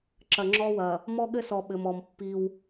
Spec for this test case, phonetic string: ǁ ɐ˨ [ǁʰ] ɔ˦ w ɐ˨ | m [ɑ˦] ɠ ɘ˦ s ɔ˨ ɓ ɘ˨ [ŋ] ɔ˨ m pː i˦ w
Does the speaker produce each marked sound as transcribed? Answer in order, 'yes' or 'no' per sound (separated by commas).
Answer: no, no, no